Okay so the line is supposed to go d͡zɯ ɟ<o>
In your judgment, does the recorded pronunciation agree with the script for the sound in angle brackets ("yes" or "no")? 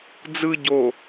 yes